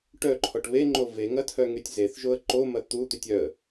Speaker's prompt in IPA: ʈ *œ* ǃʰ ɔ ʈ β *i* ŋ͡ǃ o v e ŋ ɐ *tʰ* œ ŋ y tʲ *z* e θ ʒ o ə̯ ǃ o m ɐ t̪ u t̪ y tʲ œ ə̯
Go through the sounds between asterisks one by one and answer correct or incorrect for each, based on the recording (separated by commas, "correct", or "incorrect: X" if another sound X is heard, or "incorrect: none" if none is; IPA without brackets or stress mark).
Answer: correct, incorrect: e, correct, correct